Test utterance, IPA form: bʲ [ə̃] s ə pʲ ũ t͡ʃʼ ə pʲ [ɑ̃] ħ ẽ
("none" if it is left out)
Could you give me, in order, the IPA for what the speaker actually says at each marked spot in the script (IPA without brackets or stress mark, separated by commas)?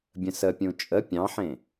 ə̃, ɑ̃